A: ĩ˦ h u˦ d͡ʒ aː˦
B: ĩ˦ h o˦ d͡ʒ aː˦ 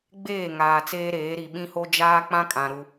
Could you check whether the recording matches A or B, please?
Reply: B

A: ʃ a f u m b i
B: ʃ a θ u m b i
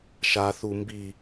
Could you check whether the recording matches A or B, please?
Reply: B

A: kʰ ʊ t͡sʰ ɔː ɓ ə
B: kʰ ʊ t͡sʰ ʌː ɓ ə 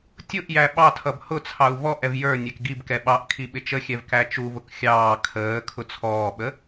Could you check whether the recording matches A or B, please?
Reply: A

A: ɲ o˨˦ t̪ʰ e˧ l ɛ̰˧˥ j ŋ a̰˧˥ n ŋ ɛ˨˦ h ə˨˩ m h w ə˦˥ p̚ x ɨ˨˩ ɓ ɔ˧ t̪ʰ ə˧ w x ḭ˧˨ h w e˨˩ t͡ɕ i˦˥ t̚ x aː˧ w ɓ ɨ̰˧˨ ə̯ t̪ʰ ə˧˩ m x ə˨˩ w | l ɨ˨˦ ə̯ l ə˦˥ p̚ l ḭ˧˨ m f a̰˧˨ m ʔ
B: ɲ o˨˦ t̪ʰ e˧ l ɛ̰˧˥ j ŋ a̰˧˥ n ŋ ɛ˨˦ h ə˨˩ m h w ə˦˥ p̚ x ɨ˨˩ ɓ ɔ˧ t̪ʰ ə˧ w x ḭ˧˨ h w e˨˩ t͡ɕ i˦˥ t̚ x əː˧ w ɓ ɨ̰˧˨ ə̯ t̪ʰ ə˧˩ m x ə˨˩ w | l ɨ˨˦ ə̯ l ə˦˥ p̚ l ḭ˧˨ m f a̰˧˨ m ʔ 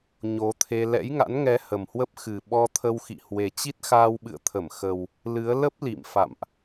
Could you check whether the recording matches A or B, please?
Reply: A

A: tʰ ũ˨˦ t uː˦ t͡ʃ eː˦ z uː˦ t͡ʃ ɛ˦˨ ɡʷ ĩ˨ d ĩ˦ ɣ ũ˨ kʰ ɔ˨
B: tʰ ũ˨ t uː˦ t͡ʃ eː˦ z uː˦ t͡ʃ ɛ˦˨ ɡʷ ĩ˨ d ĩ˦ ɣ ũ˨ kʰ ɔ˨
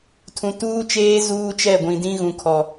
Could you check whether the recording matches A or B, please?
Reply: B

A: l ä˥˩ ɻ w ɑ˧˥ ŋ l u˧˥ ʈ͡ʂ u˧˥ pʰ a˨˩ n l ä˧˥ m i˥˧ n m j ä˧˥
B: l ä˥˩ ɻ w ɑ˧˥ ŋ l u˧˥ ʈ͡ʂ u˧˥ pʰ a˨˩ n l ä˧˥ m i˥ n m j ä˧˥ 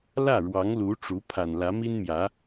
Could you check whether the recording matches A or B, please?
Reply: B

